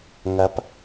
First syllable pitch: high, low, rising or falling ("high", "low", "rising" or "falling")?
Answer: rising